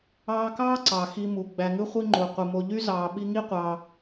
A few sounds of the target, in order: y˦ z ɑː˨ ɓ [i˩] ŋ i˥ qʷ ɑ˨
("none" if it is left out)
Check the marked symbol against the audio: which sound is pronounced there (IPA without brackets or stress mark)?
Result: i˦